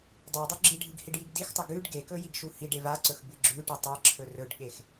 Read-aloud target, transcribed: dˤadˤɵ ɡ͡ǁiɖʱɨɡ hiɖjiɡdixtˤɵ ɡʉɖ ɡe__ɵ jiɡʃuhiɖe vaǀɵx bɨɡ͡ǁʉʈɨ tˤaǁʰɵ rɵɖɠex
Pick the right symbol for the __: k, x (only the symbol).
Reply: k